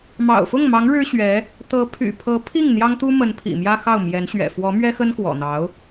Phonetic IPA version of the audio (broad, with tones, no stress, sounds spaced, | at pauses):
m ɑ̰˨˩ ʊ̯ f ʊ˥˩ ŋ m ɑ˧˥ ŋ ɻ ɻ̩˥ ɕ ɥ ɛ˧˥ | t̪ ɤ˧˥ pʰ y̰˨˩ pʰ ɤ˧˥ pʰ i˥˩ ŋ n̪ j ɑ˥ ŋ t̪ u˥ m ə˧˥ n pʰ ḭ˨˩ m j ä˥ x ɑ˥˩ ʊ̯ m j ɛ˧˥ n ɕ ɥ ɛ̰˨˩ f w ɔ˧˥ m ɥ ɛ˥ x ə˥ n k w ɔ̰˨˩ n̪ ɑ˧˥ ʊ̯